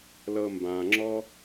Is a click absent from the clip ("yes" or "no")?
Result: no